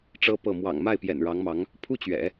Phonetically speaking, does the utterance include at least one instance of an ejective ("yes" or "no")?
no